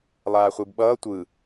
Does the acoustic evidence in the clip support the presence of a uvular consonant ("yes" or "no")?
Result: yes